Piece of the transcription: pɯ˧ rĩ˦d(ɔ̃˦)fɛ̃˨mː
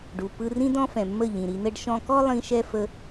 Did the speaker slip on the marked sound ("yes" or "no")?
no